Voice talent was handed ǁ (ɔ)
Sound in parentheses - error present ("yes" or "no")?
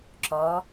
no